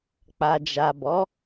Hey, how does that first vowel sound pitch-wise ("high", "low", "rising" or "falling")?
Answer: low